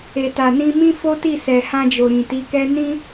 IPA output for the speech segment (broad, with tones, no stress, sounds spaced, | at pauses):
e˨ t a˨ n ĩ˧ m ĩ˦ f o˦ t i˦˨ s ɛ˨ h ã˧ d͡ʒ o˨ ɾ ĩ˨ t i˨˦ k ɛ˦ n ĩ˦